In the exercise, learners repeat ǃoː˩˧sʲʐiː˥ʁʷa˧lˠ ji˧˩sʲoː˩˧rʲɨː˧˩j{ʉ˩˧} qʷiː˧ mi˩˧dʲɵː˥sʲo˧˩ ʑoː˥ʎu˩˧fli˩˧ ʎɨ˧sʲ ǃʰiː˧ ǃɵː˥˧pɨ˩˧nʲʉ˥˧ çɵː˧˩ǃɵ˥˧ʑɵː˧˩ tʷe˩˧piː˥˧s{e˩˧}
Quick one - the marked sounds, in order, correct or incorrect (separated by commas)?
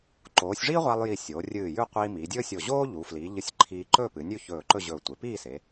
incorrect, correct